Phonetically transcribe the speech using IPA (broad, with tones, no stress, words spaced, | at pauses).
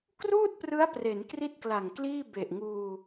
kruː˥˩t̚prɯ˦˥a̯ pre˩˦nkri˥˩t̚kla˨˩ŋkliː˥˩ be˨˩ʔŋuː˧